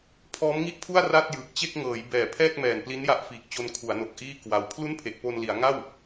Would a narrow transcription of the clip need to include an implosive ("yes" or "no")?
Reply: no